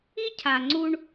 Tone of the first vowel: high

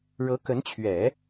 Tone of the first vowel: rising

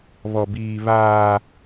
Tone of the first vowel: high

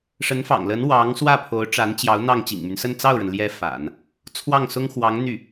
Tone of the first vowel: rising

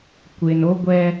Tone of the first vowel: low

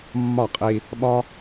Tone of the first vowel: falling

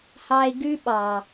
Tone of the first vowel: low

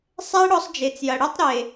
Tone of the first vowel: high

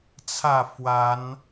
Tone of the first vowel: falling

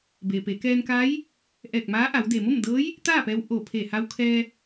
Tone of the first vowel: low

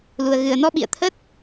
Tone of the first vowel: low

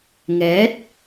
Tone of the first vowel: rising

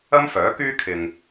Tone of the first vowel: high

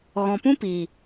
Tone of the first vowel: low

